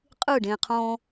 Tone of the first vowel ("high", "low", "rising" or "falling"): falling